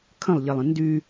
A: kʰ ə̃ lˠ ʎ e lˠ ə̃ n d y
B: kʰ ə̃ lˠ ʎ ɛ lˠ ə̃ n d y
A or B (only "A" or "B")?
A